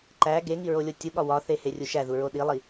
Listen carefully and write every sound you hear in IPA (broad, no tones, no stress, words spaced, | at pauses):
ǃæ ɡeŋi ɹolʲotʲuɠɒ wɒθe herʲuʃæðu ɹoɗilˠi